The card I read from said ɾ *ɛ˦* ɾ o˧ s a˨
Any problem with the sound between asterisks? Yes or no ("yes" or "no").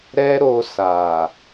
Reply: no